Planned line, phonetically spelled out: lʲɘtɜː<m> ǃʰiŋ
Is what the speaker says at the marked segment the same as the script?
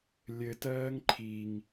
no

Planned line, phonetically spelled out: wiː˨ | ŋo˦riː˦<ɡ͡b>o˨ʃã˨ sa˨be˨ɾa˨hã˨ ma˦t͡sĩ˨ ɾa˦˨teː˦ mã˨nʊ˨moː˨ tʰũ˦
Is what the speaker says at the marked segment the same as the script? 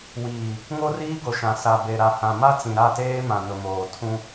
no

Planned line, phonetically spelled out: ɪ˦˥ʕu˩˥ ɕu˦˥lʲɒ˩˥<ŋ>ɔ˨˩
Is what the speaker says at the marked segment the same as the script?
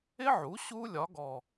no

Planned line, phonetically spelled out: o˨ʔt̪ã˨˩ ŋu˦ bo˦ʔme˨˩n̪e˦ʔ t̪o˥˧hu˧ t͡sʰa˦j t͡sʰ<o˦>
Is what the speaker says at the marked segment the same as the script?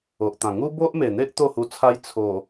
no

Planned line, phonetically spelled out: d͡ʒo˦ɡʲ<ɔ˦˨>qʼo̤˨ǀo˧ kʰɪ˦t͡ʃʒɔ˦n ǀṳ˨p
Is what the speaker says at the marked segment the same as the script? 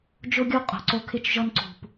no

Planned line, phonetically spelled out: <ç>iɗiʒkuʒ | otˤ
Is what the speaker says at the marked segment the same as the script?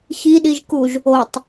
yes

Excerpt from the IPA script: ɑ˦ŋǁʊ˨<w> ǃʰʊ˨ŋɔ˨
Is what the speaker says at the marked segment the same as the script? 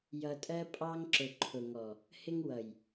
no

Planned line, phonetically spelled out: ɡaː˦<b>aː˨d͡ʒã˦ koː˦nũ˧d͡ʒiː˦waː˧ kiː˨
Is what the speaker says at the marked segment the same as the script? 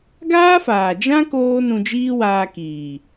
no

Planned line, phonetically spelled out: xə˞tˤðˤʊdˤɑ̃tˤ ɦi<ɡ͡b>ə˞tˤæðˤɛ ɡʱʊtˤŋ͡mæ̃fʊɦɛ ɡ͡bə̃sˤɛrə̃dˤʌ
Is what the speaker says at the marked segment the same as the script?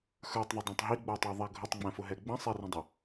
yes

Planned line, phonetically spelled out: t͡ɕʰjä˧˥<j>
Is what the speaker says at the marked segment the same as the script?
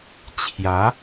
no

